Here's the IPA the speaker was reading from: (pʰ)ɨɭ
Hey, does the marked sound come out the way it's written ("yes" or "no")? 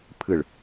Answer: yes